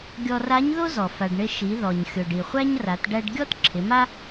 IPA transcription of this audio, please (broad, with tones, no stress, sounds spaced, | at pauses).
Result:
ɡʲ ɔ˧ r a˧˥ ɲ ð o˥ z ɔ˩ f a˩ ɖ ɳ ɪ˧ ʃ i˩˧ ð ɔ˩ ɲ xʲ o˩ ɖ i˩ χʷ æ˥ ɲ r a˩˧ t ɖ æ˧ ɖ ɡʲ ɔ˥ t ǁʰ ɪ˩˧ m a˥